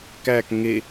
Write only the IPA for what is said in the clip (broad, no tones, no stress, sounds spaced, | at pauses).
k æ k ŋ e